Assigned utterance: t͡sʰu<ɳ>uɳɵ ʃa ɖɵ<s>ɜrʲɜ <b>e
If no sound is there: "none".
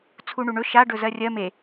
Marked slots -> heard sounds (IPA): ɳ, z, m

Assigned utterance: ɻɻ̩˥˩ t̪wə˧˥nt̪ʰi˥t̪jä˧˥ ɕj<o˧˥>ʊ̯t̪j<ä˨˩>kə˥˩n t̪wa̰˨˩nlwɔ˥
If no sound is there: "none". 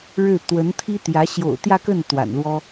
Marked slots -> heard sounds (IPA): o̰˨˩, ä˥˧

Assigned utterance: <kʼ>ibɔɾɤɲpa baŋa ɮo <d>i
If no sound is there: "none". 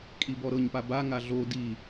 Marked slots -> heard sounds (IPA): kʼ, d

